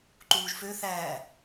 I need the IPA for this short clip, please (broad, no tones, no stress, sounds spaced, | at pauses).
ǃ uː ʒ f ø θ æː